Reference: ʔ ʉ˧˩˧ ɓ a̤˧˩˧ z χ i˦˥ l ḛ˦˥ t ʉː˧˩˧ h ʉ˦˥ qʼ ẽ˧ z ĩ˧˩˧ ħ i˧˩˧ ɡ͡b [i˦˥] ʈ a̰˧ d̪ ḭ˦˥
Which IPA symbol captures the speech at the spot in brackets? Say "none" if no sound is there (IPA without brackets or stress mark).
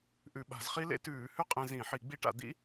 i˦˥